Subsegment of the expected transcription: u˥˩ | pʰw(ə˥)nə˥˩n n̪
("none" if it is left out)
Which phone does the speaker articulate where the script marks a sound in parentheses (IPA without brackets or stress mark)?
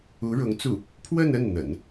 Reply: ə˥˧